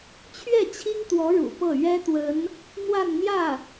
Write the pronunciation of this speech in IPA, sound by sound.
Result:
t͡ɕʰɥɛ˥˩t͡ɕʰi˥ŋt̪wɔ˧˥ ɻṵ˨˩pɤ˥˩ ɥɛ˥t̪wə˧˥n | n̪wa˥˧nn̪jä˥˩

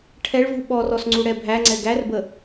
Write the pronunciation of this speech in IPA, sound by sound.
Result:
ʈʰɛɭ vuɓɔrɔs ŋ͡ǀuɽɛbʱæŋ͡ǀɛ ɡærbə

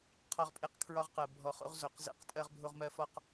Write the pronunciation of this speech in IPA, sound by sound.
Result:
qʰɒ˦ʁpʼe˦q kʰɹɒ˦ʁqɜ˨ bʱɔ˨χo̰˦ʁ zo˨qzḛ˦qtʼɜ˦ʁ bʱo˦ʁmɜ˦ fɒ˦q

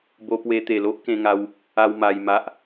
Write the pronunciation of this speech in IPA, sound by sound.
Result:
bo˧pwe˧ t̪e˨˩lo˦ʔkẽ˧ŋa˧w | a˦wma˧jma˦ʔ

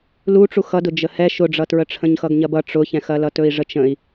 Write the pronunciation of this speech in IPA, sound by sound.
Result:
luʈ͡ʂu xʌdʊ d͡ʒəhɛ ʃʊɖ͡ʐʌtɹə ʈ͡ʂʰə̃ɲxʌɡɲɐbʌ ʈ͡ʂʊçɛ̃xɐlʌ tɵi̯ʐət͡ʃə̃i̯

